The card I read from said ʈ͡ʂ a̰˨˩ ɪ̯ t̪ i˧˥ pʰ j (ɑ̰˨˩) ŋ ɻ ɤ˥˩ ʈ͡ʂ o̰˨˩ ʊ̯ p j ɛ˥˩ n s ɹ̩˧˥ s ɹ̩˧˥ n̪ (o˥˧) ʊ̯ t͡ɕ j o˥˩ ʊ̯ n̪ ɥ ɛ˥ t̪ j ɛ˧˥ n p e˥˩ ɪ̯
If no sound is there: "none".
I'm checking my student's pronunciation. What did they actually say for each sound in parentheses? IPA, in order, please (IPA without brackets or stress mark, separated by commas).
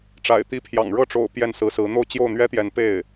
ɑ̰˨˩, o˥˧